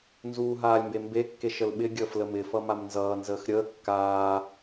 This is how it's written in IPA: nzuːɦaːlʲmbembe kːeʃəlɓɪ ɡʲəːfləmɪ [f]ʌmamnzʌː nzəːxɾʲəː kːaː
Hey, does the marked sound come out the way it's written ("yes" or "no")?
yes